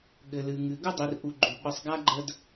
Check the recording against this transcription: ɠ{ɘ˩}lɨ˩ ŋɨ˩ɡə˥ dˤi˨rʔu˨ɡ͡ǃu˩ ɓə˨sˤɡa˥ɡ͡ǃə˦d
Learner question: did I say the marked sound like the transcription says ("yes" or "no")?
yes